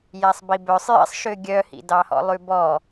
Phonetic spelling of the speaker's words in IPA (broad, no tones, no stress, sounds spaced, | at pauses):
j æ sˤ b i b œ sˤ j ḭ sˤ ʃ ø ɡʲ œ h ḭ d ɑ h ɔ̰ lˠ ʉ b ɔ